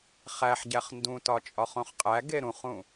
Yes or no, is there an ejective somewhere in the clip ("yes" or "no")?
yes